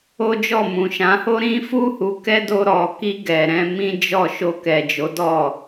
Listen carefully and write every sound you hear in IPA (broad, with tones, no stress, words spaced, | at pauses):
o˦d͡ʒɔ˦˨mũ˨ ʃã˨˦ ho˦ ɾĩ˦fu˦ hu˧ kɛ˦do˧ɾɔ˨ki˧ ɡɛ˨ɾɛ̃˧ mĩ˦d͡ʒɔ˦˨ ʃo˧kɛ˨d͡ʒo˨˦ dɔ˦˨